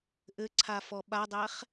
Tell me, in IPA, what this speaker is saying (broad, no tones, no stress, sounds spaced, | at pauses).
ʔ ɘ ǀʰ a f ɔ ɓ a dˤ ɛ χ